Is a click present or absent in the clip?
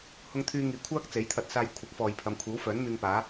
absent